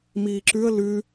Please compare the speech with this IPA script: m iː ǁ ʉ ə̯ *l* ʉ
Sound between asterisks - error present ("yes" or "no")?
no